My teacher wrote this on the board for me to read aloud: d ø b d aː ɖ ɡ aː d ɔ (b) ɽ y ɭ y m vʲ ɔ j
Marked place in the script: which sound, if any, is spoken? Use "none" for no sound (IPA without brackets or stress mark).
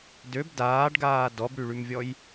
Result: b